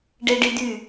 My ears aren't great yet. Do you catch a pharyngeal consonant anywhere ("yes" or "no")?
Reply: no